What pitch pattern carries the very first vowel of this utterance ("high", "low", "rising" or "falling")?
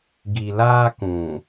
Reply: low